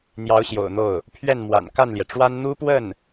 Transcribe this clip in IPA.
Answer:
n̪ j ɑ˧˥ ʊ̯ ɕ j o̰˨˩ ʊ̯ n̪ o˥˩ ʊ̯ | pʰ ɥ ɛ˥˩ n m w a̰˨˩ n k a˥˩ n l j ɛ˩ ʈ͡ʂ w a˥ n n̪ u˥ p w ə˥˩ n

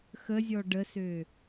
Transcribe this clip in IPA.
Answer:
x ə zʲ ɔ ɖ ə s ø

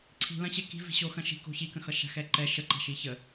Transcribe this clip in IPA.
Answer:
ǀʰ i̤ l ɐ̃ ɕ ɛ k i̤ v i̤ ɕ o x ɐ̃ ʃ i̤ k o̤ ç i k ə̃ x ʌ ʃ a̤ x ɛ ǃ ɛ ʃ ə ǃ a̤ ʃ i ç ə

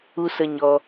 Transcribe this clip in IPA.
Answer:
u˧ s ə˧ ɲ ɔ˧

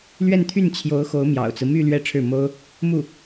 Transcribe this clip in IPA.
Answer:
l ɥ ɛ˥˧ n t̪ʰ y˥˩ n t͡ɕʰ j o˧˥ ʊ̯ x o˧˥ ʊ̯ m j ɑ̰˨˩ ʊ̯ t͡s ɹ̩˦ m y˥˧ l ɥ ɛ˥˧ ʈ͡ʂʰ ɻ̩˥˩ m o˥ ʊ̯ | m u˥˩

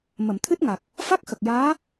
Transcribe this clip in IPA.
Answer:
m ə˨˩˨ m t̪ʰ ɨ˦˥ t̚ ŋ a˨˩ k̚ | f a˦˥ k̚ x ə˨˩ k̚ j aː˧˥

